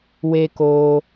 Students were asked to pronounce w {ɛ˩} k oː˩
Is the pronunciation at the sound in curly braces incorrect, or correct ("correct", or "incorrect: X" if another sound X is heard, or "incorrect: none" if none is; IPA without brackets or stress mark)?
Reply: incorrect: e˩